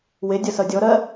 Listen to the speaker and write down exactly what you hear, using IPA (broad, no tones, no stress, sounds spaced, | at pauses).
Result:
w e dʲ ʌ s ʌ dʲ ɔ ɾ ɜ